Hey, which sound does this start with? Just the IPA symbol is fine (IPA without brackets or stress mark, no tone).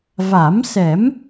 v